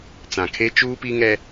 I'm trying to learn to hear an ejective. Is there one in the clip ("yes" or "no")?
no